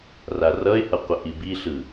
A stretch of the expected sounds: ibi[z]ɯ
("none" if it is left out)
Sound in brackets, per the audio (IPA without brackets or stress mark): ɬ